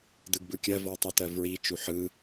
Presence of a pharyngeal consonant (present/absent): present